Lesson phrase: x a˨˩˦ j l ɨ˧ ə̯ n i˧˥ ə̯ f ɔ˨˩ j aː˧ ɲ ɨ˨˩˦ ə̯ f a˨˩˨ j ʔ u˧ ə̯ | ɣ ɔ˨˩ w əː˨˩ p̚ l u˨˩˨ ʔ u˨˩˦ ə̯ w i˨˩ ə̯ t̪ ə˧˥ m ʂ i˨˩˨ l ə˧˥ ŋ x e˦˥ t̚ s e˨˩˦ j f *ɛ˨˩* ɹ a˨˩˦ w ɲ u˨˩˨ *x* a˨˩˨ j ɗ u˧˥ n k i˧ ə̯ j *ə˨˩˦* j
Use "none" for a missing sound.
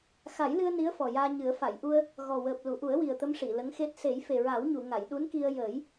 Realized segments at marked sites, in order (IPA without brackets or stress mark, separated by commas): e˨˩, ŋ, əː˨˩˦